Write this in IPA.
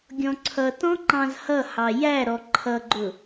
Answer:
ɡʲɔ̃ǀʰʌtɔ̃ ŋ͡ǃɑ̃zhʌhɑ jæɾɔ ǃʰʌɡ͡ǃʊ

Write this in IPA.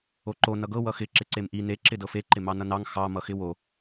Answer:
oǃo nʌɡɤ wʌxɪ ǁɪǀemʔi ne ǁɪdɤfe ǃɪmɑnʌnɑŋ xɑ mʌxɪwo

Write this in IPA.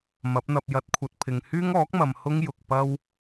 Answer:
mɐ˨˥p̚n̪ɐ˧p̚jɐ˧t̚kʷʰɐ˧t̚ pʰɪ˨ŋhyː˥ŋɔː˨˥k̚mɐ˨m hʊ˥ŋ jʊ˨k̚pɐ˥w

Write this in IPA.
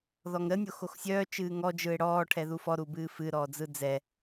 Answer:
ðɔŋɾə nʲoxoxsʲœː t͡ʃɨːŋɔ d͡ʒɯe̯ɽɔː ʈʰɛðufɔ ɾubɨːfɨ ɾɔːd͡zɯd͡zɛ

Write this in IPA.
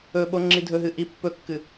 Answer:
ɵɓo ŋ͡ǁidʱɵɦɨ ʔi pːɵkːɨ

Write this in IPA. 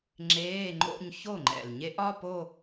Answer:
ŋ͡ǁeː˧˥˧ŋ͡ǃo̰˥˧ɲ ço˥˩ŋ͡ǃɛ̰˨˩lɲe˦˥ʔ ɒ˧˥˧po˥˧

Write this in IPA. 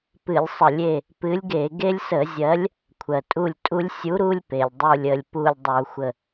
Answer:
pɨ˧˩˧lʲsˤə˧˩˧lʲe˦˨ | pɨ˨˥lʲɡe˧˩˧ ɡe˦lʲsə˧˩˧zʲɜ˨˥lʲ | kʷʰɜ˩tʼu˦˨lʲtʼu˦lʲ sʲu˨˥ɾu˦lʲ pe˩lʲdˤu˦˨lʲə˦˨lʲ pu˦˨lʲdˤu˧˩˧xʷə˦˨

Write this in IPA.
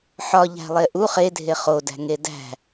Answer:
ħɒʎæ̤ lˠeʔu χedʱe χodæ̤ŋe dæ̤

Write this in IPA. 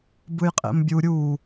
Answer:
bɯjqʼḛmbʲu ɾʲu

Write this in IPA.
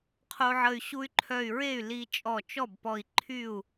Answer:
qʰo˧ʕə˧˩y̯ ɕu˧y̯ǃʰœ˧˩y̯ɹe˥˩y̯ li˧ t͡ʃʼɔ˧˩t͡ʃɔ˥˩bpɔ˧˩i̯ ǃʰy˥˩u̯

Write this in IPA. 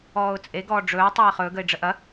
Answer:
ɔːʊ̯t͡sʼeɡɔː ɖ͡ʐɵː tˤeːχɵː ɡəɪ̯ɖ͡ʐəʔɐ

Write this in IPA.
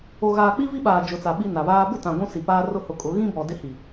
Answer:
o˨ɣaː˨k͡pi˦ vi˦ɓaː˨ d͡ʒʊ˨t͡sa˨ ɓi˦na˨βaː˦ bʊ˦˨tã˨ ɡʷũ˦si˨paː˦ rʊ˦hʊ˨˦kʼʊ˨˦ ɣĩ˦bɔ˨ dɪ˦hi˨

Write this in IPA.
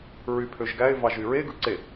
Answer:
ɹypʰøʒɡæɪ̯ vɑʒyɹe ɡɯǀe

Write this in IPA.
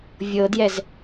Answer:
vʲɤdjɛz

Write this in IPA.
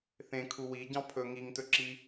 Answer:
θẽkʰu wiɟɑ̃ pʰɵ ŋiŋtɵǁi

